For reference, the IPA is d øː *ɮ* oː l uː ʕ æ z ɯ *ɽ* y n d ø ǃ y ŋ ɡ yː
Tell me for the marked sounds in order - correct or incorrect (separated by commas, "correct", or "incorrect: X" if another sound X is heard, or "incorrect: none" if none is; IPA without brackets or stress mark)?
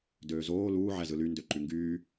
incorrect: z, incorrect: l